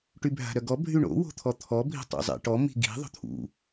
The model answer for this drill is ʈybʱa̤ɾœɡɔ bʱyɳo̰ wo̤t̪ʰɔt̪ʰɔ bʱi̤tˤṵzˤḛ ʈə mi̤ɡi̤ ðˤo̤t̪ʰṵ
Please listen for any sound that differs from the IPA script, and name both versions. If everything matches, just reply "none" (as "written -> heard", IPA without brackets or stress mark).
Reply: ə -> ɔ